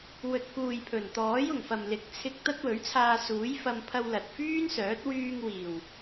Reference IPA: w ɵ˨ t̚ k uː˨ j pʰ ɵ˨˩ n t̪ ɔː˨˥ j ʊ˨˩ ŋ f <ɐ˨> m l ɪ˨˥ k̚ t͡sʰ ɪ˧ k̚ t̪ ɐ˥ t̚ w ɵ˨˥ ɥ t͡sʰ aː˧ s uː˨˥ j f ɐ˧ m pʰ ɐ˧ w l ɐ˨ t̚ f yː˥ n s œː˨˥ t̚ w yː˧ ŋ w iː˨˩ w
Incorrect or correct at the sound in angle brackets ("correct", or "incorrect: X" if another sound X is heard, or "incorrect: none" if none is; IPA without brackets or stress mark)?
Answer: correct